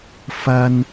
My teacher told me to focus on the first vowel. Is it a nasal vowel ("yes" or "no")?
no